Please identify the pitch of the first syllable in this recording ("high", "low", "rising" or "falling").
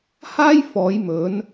high